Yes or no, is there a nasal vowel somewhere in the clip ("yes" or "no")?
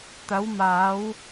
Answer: no